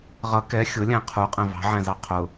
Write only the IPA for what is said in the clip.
ʁ ʌ k ɛ xʲ ʊ lʲ æ̃ qʰ u qʼ ɛ̃ v ɑ̤ ʕ æ̃ z ɑ qʰ ʊ

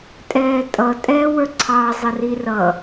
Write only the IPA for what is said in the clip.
tʼ ɛː tʼ ʌ tʼ ɛː w ə˞ ǀʰ ɑ zˤ ə r i r ʌ

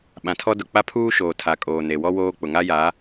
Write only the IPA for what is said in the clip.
ɓ ã˨ tʰ ɔ˦ d ʊ˨ k͡p a˦ pʰ uː˦ ʃ oː˨ tʰ a˨ kʼ oː˨ n e˨ w ɔ˦ w oː˦ k͡p ʊ˨ ŋ a˦ j a˨˦

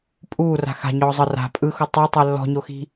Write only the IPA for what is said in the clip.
pʼ uː r a̤ x a̤ ɲ ɔː zˤ ɤ r a̤ pʼ ɯ x o tˤ o tˤ ɛ lː ɔ̤ ɲ o x i̤

